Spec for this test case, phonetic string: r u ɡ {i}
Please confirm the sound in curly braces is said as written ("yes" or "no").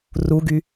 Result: no